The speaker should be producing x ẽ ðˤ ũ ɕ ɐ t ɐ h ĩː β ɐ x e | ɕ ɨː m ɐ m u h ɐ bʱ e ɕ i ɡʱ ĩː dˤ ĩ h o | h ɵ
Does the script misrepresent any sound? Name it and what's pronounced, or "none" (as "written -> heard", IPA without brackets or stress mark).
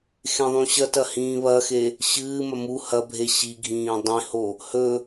none